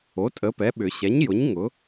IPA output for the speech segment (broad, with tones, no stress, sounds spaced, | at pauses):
o˩˥ tʼ ə˩˥ p ɛ˩˥ ɓ ʏ˨˩˦ ɕ ɛ˩˥ ɲ j ʊ˩˥ ɲ ŋ ʊ˩˥